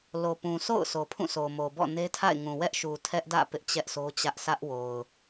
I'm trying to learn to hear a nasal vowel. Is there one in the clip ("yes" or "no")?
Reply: yes